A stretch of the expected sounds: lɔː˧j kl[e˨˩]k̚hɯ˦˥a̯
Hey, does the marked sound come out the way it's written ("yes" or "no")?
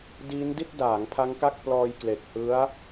yes